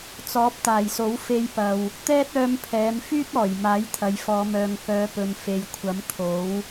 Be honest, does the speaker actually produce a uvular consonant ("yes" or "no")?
no